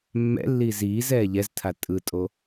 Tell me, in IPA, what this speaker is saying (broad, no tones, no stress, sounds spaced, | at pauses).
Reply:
mː ɛ̰ lː iː z iː z ɛː ʎ ɛ z tʰ a tʼ ɯ tʼ o